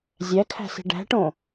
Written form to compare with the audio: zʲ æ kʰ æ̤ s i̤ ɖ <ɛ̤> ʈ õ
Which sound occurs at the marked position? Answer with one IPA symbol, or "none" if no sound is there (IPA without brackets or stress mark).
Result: æ̤